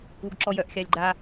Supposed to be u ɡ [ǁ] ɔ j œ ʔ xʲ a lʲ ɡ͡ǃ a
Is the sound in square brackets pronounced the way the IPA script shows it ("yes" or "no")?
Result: yes